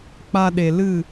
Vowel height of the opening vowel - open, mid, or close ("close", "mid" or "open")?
open